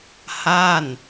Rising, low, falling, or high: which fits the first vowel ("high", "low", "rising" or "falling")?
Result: falling